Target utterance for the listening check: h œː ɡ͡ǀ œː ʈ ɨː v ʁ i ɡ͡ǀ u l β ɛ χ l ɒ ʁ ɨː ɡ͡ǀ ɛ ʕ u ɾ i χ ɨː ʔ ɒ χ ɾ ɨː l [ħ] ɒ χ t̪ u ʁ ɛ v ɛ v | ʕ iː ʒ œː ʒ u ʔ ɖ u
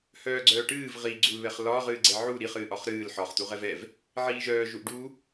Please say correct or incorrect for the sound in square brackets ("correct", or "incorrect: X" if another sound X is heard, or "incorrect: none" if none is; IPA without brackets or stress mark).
correct